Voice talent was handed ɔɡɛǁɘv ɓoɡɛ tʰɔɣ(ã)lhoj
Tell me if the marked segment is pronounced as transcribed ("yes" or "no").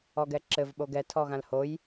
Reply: yes